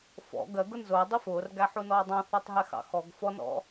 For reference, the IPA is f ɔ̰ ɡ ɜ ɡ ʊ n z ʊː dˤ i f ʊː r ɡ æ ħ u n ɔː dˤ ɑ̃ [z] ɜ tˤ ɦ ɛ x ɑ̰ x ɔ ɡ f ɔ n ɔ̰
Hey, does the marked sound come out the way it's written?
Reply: no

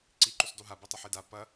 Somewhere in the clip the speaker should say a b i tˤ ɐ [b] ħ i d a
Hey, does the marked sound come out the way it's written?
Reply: no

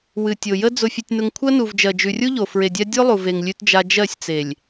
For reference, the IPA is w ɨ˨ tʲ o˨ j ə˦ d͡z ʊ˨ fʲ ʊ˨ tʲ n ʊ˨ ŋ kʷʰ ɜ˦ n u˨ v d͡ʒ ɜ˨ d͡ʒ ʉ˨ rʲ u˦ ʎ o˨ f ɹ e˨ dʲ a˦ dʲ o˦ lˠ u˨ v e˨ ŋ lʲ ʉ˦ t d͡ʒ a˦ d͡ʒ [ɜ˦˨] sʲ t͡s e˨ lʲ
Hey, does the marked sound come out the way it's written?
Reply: yes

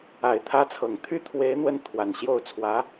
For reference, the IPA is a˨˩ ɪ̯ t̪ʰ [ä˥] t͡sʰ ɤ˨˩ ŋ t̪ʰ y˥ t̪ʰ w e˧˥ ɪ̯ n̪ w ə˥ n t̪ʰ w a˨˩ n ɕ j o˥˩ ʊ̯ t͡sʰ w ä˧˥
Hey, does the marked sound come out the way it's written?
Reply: yes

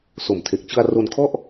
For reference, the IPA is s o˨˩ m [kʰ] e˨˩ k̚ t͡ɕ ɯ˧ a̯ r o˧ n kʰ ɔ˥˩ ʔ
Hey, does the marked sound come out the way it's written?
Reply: no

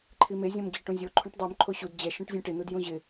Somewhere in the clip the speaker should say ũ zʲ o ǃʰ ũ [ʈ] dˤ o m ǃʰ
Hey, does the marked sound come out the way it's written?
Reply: yes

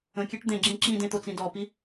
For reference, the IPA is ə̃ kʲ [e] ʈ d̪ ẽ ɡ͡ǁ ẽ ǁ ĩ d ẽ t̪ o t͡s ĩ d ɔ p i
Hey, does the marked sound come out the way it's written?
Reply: yes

